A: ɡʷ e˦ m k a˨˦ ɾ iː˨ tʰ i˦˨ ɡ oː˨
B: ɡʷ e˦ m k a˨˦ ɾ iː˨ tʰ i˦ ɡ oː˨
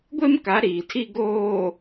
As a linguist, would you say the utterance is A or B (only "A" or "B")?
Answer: B